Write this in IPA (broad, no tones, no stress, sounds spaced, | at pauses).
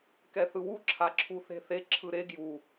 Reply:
k ɛ θ ɯ w u ǁʰ a ǁʰ u θ e̤ θ e ǁʰ ɯ ɾ e ɡ j u